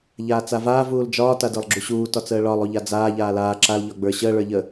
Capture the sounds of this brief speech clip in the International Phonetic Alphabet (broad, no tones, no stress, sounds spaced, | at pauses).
ʎ aː t͡s a v aː v uː l d͡ʒ ɒː t a d ə˞ lˠ ɡ͡ǁ u ɕ uː t ɒ t͡s əː ɭ ɒ lˠ u ʎ a d͡z aː ʎ aː l aː ǁ a l ʎ ɒ ɡ͡b ə˞ ɕ əː ɭ ə˞ ʎ ə